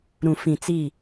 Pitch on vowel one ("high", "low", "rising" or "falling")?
low